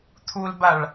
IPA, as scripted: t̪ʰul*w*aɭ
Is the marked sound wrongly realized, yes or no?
yes